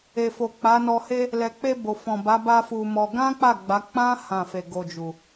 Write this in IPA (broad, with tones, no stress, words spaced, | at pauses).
e˨fo˨k͡pa˨˦ nɔ˧he˦ | lɛ˨k͡pe˧ bo˨fɔ̃˨ba˨˦ ba˦fu˧mɔ˧ ɡã˦k͡pa˦˨ ɡ͡ba˨˦ k͡pã˦ hã˦˨fe˧ ɡo˧d͡ʒu˨